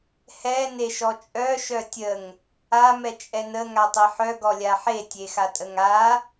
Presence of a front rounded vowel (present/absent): present